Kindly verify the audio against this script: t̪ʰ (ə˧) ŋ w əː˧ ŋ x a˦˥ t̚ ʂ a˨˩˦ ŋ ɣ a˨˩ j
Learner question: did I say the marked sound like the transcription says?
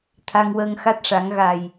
no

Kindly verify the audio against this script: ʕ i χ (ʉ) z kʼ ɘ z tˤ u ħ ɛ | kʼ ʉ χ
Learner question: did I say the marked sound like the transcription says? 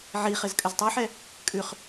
no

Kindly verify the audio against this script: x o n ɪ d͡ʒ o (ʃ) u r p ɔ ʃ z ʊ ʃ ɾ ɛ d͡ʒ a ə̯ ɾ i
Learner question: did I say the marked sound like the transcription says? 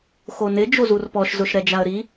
no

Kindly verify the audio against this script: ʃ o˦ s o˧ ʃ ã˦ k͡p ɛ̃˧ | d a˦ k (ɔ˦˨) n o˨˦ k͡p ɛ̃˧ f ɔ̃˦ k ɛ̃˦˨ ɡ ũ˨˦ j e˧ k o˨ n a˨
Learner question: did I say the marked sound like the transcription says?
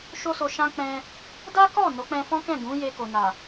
yes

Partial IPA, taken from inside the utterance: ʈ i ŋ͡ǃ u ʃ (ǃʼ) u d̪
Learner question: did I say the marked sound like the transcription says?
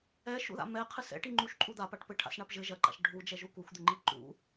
yes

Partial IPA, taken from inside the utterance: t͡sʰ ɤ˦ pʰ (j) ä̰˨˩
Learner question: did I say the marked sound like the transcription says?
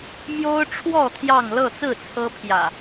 yes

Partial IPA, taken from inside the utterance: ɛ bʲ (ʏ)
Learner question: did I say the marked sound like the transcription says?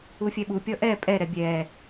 no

